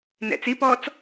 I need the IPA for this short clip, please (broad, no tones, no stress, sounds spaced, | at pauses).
n ɛ̰ t͡s i p ɔː t͡s